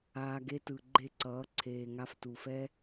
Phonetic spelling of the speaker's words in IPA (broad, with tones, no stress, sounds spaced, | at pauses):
aː˧ ɡ e˦ t ɯ˨ ɡ͡ǃ e˦˨ ǀ ʌː˨˦ ǀʰ eː˨ ŋ a˧ f t u˨ f ɛ˦